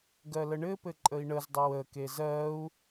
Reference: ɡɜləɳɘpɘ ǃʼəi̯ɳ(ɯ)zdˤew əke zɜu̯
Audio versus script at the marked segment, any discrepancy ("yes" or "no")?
yes